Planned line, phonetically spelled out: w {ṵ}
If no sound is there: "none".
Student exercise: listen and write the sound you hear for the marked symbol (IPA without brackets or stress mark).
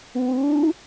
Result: u